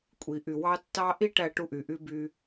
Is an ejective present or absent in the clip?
present